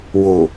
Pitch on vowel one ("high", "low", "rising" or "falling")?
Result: low